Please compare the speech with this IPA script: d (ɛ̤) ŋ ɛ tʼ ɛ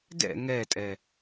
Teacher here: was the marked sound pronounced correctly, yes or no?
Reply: no